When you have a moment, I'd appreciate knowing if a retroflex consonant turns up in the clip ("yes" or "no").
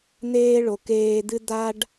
yes